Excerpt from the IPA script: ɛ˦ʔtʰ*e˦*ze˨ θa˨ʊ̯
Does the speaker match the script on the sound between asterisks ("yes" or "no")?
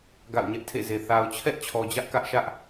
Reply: no